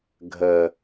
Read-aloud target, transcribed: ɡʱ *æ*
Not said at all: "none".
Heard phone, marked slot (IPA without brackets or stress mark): ə